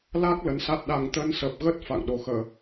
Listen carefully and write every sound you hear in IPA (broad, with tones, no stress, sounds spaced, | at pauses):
l a˦˥ k̚ l ə˨˦ n s a˦˥ t̚ ɗ a˨˩ ŋ t̪ ə˧ n s ə˨˩ p̚ ɣ ə˦˥ t̚ f a̰˧˨ ŋ ɗ o˨˩ x əː˧˩˨